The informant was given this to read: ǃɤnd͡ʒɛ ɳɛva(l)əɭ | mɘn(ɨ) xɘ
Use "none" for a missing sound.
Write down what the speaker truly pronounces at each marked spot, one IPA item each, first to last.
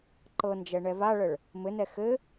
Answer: ɭ, ɛ

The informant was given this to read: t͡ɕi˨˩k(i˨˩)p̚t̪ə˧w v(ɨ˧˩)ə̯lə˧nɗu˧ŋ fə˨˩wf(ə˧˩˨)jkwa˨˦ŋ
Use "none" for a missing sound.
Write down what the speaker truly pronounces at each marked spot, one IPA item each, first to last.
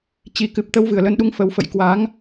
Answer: ɨ˨˩, ɨ˧˩, ə̰˧˨

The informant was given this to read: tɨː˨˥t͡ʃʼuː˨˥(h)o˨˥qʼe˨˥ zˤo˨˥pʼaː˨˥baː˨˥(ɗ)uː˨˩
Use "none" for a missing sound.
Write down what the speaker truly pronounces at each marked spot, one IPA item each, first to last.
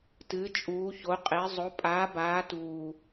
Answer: ç, t

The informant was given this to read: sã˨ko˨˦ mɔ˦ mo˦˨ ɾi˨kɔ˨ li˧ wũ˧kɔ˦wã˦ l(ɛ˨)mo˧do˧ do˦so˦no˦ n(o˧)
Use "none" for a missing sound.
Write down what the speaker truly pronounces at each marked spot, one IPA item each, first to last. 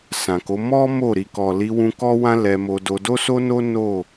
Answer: ɛ˧, o˦˨

